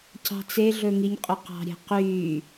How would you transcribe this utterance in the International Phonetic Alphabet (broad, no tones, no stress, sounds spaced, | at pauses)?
c ɑ̤ t͡s e ɮ ɵ ŋ i ɲ qʼ ɵ q ɑ̤ ɾʲ e̤ q yː